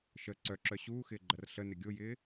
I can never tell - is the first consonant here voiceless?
yes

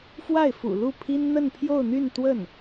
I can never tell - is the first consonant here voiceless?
yes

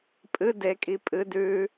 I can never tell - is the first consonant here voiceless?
yes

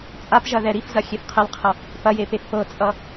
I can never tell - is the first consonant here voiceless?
yes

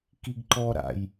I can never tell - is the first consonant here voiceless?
yes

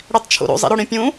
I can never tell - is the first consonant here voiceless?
no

